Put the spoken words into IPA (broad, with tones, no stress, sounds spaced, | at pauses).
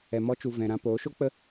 ɛ˨ m ɔ˧ t͡ʃ u˨ v ɛ̃˨ ɾ ã˧ p oː˨˦ ʃ o˦ k͡p ə˦